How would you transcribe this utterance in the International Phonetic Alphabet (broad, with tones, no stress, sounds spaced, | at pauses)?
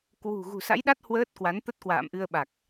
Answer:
k w ṳ˨˩ ɣ ṳ˨˩ s a̰˧˥ j ɗ a˦˥ t̚ h w əː˦˥ t̚ k w a˨˦ n t̪ ə˦˥ t̚ k w a̰ː˧˨ m ʔ ɨ˧ ə̯ ɓ a˨˩ k̚